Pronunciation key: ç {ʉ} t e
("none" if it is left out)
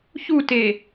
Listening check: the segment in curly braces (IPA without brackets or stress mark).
u